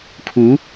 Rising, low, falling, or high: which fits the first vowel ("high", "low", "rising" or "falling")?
rising